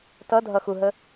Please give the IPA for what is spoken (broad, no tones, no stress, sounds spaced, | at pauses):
t ʌ dʱ ʌ x u ɦ ə